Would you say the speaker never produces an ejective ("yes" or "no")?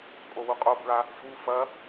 no